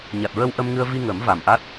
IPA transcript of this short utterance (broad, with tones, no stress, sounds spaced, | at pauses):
ɲ a˨˩ t̚ ɹ ə˧ w ʔ ə˧ m ŋ ɨ˧ ə̯ v i˧ ŋ ə˨˩˦ m v a˨˩ m ʔ a˦˥ t̚